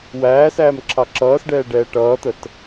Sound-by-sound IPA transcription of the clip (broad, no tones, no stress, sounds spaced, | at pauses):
w æː s æː m ǁʰ ɑ ǁ ʌː s ɖ ɛː ɖ ɛː ʈ ʌː t̪ ə t